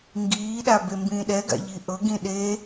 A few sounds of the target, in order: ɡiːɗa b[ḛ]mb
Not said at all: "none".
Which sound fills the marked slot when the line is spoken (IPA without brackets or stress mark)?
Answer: e